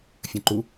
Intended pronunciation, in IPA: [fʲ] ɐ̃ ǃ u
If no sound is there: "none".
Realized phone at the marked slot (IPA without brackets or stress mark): fʲ